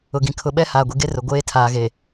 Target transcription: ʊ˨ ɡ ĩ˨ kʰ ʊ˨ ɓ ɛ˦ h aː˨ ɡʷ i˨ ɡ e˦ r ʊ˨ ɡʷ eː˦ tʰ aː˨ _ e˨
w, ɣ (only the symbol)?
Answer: ɣ